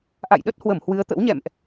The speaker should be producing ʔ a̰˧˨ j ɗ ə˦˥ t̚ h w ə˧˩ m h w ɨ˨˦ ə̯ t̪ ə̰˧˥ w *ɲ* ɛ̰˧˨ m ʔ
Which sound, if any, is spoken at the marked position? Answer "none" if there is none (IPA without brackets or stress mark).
ɲ